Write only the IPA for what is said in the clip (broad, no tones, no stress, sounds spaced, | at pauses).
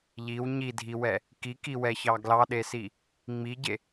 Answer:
ʎ i w ɲ i dʱ i w ɛ | k i k i w ɛ ç ɑ ɡ l ɑ ɗ e s i | ŋ͡m i ɟ e